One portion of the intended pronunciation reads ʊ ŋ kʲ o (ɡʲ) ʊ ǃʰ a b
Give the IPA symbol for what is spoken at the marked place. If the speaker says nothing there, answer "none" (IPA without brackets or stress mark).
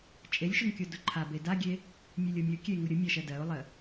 d